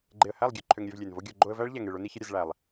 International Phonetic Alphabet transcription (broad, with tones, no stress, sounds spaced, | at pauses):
ɡ͡ǃ e˨ ə̯ h æ˦˨ lˠ ɡʲ ø˨ ǃʰ ø˨ ŋ ɾʲ ø˧ v lʲ e˨ n v o˦ ɡʲ o˧ ɡ͡ǃ o˧ ə̯ v æ˦ ɭ ʎ æ˨ ŋ e˨ ɭ o˦ n i˦ ç ə˦ ɾʲ ə˧ z ɭ æ˨ lˠ